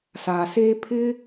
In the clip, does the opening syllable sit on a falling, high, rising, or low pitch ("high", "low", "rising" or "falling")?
low